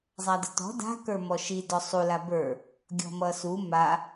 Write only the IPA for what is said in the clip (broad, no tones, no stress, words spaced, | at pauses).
zˤadətɔ̤ da̤ kə˞mɔʃi dɔsˤu labə˞ | ɡʲɔ̤mʌsu ma